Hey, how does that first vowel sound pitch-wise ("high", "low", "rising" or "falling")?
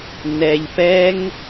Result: low